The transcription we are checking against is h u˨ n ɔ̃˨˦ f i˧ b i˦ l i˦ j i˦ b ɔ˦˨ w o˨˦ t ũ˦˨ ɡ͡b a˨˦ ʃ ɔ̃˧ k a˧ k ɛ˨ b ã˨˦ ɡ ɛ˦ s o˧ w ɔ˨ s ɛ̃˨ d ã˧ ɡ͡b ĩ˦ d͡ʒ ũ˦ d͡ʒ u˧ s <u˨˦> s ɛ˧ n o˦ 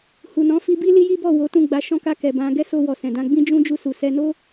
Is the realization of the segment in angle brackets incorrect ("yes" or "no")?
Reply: yes